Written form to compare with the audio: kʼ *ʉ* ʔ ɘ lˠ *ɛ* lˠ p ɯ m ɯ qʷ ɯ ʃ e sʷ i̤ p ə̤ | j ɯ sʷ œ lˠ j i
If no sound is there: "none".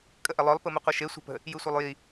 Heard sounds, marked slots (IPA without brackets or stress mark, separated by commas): ə, œ